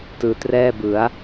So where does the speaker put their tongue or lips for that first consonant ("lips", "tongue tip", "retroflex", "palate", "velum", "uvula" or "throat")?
tongue tip